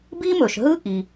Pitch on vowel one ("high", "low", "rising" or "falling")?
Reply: high